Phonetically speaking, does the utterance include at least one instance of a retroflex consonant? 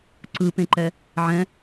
no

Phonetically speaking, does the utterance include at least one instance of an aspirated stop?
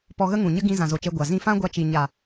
no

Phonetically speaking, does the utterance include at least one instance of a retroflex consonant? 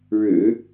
yes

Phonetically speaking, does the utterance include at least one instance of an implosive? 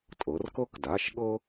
yes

